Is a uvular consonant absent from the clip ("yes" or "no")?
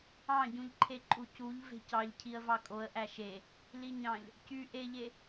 yes